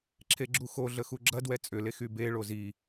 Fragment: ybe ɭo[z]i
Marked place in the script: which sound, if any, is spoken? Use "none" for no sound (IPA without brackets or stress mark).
z